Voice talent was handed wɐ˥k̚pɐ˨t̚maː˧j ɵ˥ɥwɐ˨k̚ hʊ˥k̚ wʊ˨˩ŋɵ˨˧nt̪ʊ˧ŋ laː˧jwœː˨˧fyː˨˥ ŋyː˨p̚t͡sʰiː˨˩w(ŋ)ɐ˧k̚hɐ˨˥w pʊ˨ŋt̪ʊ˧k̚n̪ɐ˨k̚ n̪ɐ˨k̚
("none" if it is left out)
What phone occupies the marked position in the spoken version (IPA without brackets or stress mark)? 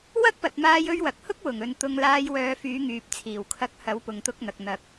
kʰ